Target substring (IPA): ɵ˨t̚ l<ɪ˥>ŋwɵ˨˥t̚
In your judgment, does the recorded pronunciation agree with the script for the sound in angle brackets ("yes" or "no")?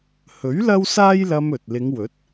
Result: no